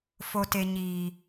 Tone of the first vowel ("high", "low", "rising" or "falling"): low